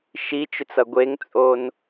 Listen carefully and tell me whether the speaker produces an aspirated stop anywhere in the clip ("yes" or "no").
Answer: no